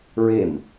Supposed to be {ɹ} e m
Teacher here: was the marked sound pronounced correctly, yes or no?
yes